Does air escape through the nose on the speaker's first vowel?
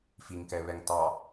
no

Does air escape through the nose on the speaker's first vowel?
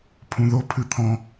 yes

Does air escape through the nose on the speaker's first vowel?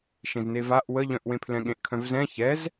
yes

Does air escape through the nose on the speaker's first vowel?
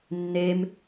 no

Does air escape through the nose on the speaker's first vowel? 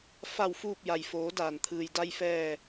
no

